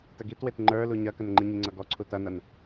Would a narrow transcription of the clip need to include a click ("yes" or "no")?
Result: yes